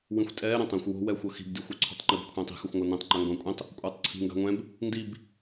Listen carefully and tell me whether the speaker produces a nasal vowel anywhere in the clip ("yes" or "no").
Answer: yes